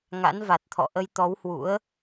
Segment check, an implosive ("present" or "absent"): absent